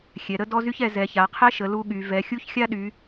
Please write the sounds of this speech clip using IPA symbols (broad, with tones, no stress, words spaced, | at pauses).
xʲɛ˨˦ɾə˥ dɔ˥zy˥çɛ˨˦ zɛ˨˦ça˨˦qʰɛ˥ʃə˨˦ lu˥ɠy˨˦ vɛ˨˦xʲu˥çxʲa˥ɗy˨˦